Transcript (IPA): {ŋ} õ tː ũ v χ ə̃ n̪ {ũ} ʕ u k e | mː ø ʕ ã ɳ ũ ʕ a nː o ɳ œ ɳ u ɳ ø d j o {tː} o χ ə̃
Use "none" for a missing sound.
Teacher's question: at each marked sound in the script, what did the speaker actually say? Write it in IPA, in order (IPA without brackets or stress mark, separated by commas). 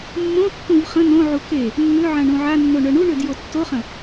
mː, õ, tː